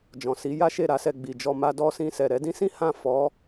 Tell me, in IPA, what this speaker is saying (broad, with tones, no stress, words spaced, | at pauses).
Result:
d͡ʒɔ̃˨si˨˦ ja˦ʃe˦˨ɾa˨˦sɛ˧ ɡ͡bi˨d͡ʒɔ˧ ma˧dɔ˧sĩ˧ sɛ˨ɾɛ˨˦dĩ˦sĩ˦ hã˦˨ fɔ˨˦